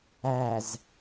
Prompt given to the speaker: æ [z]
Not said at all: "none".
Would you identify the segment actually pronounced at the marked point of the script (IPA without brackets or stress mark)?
z